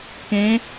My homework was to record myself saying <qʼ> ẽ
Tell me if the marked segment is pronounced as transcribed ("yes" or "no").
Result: no